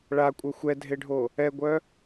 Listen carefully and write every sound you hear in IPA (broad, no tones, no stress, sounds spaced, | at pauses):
ɭ a kʷʼ œ xʷ ɛ dʱ e ɖʱ o | ɛ ɡʷ œ